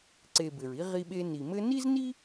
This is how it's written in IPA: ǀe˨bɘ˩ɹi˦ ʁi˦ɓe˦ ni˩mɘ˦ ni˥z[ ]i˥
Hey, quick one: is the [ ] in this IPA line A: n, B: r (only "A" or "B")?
A